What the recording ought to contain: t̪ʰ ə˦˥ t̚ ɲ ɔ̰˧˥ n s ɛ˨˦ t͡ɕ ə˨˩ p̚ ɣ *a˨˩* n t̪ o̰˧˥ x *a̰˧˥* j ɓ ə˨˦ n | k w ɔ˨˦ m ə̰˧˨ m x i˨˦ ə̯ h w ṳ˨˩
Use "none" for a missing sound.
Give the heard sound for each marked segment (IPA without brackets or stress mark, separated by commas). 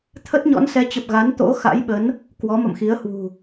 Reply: a˨˦, a̰˧˥